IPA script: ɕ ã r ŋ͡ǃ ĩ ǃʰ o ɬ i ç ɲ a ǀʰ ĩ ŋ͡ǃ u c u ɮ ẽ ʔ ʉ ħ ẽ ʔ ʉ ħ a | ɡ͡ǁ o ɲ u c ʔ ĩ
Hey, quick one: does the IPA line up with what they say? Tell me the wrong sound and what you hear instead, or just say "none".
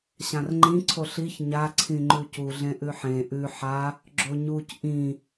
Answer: ǃʰ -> ǀʰ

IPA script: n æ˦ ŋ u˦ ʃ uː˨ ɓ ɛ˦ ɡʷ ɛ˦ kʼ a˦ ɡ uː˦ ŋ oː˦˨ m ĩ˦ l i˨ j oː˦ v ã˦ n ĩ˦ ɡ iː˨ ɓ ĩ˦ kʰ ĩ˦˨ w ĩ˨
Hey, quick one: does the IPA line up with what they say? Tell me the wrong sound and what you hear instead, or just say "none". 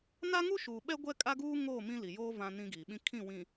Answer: æ˦ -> a˦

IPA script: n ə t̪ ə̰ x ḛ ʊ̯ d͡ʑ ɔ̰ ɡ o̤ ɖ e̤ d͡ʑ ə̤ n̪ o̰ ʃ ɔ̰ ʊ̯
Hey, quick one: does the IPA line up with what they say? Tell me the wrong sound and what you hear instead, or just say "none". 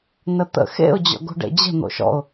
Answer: e̤ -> ḛ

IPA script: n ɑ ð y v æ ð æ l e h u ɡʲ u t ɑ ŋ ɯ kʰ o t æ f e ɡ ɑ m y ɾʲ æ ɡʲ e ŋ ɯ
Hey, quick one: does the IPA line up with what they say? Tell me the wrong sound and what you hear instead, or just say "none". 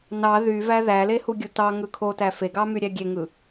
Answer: none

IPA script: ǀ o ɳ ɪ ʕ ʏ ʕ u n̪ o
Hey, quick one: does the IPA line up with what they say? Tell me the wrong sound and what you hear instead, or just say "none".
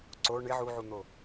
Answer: ʏ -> u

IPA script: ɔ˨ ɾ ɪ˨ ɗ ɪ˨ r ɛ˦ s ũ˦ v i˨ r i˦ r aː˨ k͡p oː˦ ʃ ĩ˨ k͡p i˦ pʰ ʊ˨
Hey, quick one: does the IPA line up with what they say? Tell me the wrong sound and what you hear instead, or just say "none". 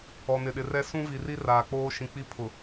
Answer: ɾ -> n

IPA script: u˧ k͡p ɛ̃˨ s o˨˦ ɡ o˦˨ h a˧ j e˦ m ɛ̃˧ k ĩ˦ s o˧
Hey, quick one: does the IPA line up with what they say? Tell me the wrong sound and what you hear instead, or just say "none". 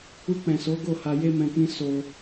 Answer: none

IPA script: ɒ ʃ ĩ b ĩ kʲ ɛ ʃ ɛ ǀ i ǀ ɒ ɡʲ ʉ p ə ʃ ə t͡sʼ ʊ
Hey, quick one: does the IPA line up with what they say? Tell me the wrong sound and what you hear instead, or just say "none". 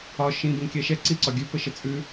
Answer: ʊ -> ʉ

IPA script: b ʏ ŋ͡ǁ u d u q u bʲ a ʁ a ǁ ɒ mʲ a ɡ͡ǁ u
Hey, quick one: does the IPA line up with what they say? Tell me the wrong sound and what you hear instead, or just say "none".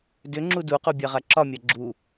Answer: b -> d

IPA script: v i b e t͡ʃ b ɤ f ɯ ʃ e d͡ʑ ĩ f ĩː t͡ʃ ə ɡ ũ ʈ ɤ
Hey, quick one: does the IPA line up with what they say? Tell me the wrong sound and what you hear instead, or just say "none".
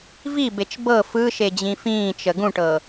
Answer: none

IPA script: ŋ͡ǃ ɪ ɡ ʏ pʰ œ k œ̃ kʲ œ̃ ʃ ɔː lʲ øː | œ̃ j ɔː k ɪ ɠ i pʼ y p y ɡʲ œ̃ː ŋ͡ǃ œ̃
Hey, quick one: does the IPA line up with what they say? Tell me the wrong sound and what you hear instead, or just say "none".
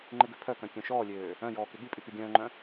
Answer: none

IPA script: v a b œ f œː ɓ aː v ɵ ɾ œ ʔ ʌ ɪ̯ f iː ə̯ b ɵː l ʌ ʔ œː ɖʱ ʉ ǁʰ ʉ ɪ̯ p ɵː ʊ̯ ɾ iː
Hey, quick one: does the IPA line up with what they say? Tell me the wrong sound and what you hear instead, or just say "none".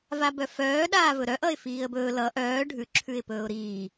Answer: ɓ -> ɗ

